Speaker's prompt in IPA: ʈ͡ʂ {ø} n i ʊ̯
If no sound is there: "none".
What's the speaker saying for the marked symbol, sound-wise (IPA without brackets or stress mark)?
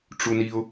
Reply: u